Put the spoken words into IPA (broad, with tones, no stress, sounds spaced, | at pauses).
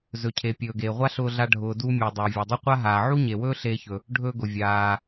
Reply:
z ɵ˩ cʰ e˩ pʲ ɵː˩ ɡ eː˩ ʁʷ a˥ ɬ ʊː˧ ɮ a˧ ɖʱ ʊː˩ d u˧ mʲ u˩ dˤ ɵː˩ vʲ e˩ dˤ ɵ˥ qʷ a˥ ɦ aː˩ ʕ u˥ ɲ e˩ w ɵː˥ ɬ eː˧ ç ɵ˩ | ɖʱ ɵː˧ ɡ ʊ˩ vʲ aː˩